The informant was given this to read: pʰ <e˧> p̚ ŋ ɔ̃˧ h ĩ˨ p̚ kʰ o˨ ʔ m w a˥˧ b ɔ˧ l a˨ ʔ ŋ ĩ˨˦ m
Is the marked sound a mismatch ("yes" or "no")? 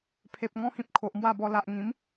yes